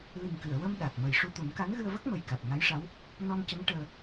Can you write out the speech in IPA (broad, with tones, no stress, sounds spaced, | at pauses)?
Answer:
l i˨˩ ŋ k ɨ˨˩˨ ə̯ w ə˧ m ɗ a˨˩ k̚ m ə˨˩ j ʂ u˧ t̪ u˨˩˦ n k a˧˥ n ɣ ɨ˧ ə̯ v ə˦˥ k̚ m ə˨˩ j k a˨˩ t̚ ŋ a˧˥ j ʂ a˧˥ w | n ɔ˧ n c ə˧˥ ŋ ʈ əː˧